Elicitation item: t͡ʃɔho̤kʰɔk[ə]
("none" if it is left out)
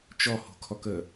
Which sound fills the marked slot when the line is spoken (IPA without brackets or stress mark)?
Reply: ə